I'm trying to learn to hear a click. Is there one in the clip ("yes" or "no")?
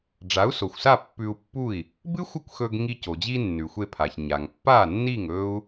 no